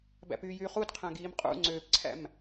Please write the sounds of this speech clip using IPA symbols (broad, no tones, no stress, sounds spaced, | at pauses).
b æ̰ p yː j yː χ u d qʰ æ̃ ɡ iː m qʼ ṵ ŋ͡ǀ øː p ǀʰ æ̰ m